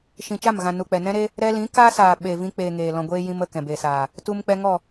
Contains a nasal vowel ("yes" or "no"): yes